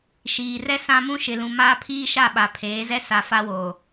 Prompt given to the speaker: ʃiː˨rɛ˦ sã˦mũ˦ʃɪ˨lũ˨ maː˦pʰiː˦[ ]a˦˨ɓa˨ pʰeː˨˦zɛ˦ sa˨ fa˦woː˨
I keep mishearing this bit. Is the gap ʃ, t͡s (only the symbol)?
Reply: ʃ